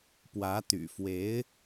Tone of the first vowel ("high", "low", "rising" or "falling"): rising